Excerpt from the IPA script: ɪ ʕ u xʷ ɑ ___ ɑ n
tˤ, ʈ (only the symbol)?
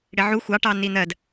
ʈ